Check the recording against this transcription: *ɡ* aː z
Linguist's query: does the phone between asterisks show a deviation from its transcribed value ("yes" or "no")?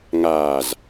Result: yes